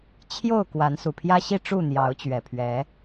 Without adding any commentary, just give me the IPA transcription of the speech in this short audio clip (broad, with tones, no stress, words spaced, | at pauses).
t͡ɕʰjo˥˨ʊ̯ kwa˨˦nsu˨˩pʰjä˦ɕi˥˨ ʈ͡ʂu˥˨n̪jɑ˨˦ʊ̯t͡ɕɥɛ˨˩pʰɥɛ˨˦